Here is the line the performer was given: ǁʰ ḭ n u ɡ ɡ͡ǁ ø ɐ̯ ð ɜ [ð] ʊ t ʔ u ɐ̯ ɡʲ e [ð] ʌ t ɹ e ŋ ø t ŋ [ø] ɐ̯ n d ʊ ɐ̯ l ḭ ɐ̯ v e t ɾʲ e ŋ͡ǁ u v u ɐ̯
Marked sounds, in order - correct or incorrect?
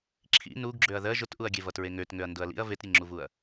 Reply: incorrect: ʒ, incorrect: v, correct

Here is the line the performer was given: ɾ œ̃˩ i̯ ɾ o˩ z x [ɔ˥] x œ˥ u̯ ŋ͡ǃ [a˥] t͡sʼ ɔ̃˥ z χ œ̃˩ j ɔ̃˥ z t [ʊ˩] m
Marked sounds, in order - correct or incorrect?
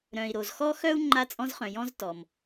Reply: correct, correct, incorrect: ɔ˩

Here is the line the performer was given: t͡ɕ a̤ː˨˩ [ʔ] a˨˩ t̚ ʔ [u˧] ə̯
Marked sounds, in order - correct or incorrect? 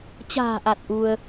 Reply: correct, correct

